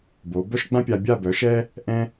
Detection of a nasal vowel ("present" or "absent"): present